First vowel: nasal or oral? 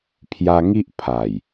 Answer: oral